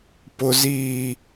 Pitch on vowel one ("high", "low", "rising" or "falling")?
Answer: low